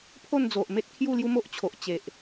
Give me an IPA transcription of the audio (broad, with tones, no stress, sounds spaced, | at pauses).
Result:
pʰ o˥˧ n d͡z o˨ ʔ m e˦ t̚ kʰ j u˥˧ l j u˦ m o˦ ʔ t͡ɕʰ o˨ ʔ t͡ɕ e˨ ʔ